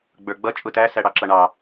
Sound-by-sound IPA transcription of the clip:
ɡ͡bə˞ɡ͡bʌ t͡ʃʼʊtæ sæɽɑǁʌɳɑ

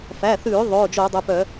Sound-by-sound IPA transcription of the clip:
fæ˩˧˩θʉː˧˩˧ ðˤoː˩˧˩d͡ʒoː˧˩˧dˤɵ˩˧˩pœ˧˩˧

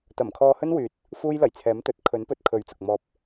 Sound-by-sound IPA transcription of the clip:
t̪ɐ˨˩mkʰɔː˧hɵ˥nwyː˨˥t̚ | fuː˥jlɐ˨˩jt͡sʰɛː˨˥m t̪ɵ˨t̚kʰɵ˨˥npɵ˨t̚kʰɵ˨˥ɥ t͡sʊ˨k̚mɔː˧p̚

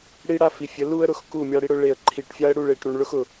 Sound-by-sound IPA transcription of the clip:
ɽi˦ɽa˦fi˨fʲə˨˦ lu˦ə̯ɾʊ˨x ku˦˨mʲa˦ɽi˦ɽʊ˦ ɭe˨ə̯ǃʰi˨ʈfʲa˦ə̯ ɽu˦˨ɭe˨ʈ ɾu˨ɳ ɭʊ˦x ʊ˨

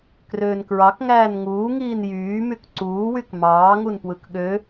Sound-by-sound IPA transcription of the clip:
krøːnkɹɑk ŋæːnŋuː ŋiːnjyː mykǀuː wykmɑːŋun pwɯkɠø

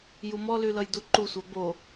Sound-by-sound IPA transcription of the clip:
jumɔlylʌj duǃusʷa bo

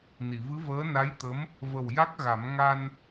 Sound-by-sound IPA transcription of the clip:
ni˨˩˨vɨ˧˥vəː˧˥ na˧˥jt̪ə˧˥m | və˨˩w ja˦˥k̚ɣa˨˩˦m ŋa˧n

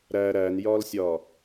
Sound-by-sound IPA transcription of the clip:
ɾæ ɾænjɒlsʲɒ

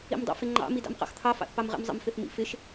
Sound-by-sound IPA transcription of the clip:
ḭmdˤɑ̰fɪŋ͡ǃɑ̰ midɑ̰mqɑ̰xt̪ʰɑ fɑ̰θpɑmʁḭmzˤə̰m fɪθmḭfɪʃ

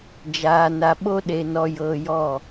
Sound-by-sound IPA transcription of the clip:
d͡ʒaː˧na˧ɓo˦ɗe˧ nɔ˧jɤː˧jɔ˦˨

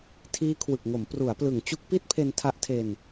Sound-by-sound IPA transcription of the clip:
tʰiː˦˥kʰwɯ˨˩k̚ŋo˩˦m pru˩˦a̯plɯ˨˩ŋ t͡ɕu˦˥k̚pi˥˩t̚pʰe˧n tʰa˦˥ʔtʰe˧n

